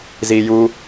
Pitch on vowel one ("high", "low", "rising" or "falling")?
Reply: low